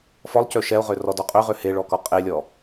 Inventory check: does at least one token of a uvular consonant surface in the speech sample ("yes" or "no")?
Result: yes